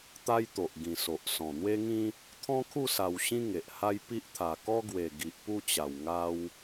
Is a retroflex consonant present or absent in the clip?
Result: absent